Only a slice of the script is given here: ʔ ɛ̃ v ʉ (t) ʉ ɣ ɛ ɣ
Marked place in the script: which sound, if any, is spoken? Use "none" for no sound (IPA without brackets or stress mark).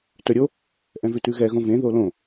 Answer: t